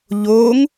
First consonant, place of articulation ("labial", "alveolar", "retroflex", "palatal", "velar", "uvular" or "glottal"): palatal